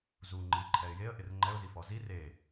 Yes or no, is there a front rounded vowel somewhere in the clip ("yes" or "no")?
no